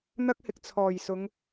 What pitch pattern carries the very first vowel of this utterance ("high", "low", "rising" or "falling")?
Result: high